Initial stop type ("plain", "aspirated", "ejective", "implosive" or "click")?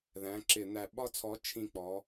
click